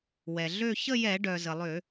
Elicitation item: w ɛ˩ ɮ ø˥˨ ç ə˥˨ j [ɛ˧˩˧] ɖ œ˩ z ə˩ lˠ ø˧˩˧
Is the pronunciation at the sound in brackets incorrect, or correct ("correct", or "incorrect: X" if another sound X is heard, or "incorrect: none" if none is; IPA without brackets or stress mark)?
correct